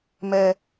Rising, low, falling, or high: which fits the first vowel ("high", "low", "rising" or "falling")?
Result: low